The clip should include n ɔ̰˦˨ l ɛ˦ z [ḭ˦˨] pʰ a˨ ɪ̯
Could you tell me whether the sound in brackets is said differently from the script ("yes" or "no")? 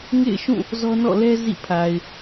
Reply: no